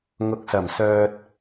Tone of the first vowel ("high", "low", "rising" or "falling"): rising